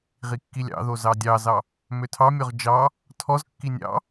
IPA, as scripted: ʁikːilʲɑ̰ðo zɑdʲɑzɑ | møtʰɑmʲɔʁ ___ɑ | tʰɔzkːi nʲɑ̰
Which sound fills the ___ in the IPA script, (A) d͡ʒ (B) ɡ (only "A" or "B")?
A